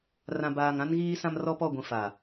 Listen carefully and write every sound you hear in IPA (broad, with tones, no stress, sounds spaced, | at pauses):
r ã˨ b aː˨ ŋ ã˦ n ɣ iː˦ s ã˦ m r ɔ˦ p ɔ˦˨ ɡʷ ĩ˨ f a˨